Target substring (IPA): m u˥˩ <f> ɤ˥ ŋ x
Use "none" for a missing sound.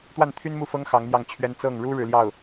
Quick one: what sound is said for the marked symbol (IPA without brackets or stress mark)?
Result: f